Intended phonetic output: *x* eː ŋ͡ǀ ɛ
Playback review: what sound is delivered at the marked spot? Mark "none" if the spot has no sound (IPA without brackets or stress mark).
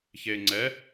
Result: ç